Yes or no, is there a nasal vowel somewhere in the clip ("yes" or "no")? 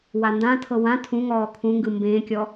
yes